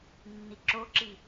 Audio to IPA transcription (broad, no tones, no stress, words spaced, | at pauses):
nːiǁoǁi